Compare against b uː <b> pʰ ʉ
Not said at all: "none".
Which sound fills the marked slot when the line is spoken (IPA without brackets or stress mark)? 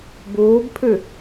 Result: b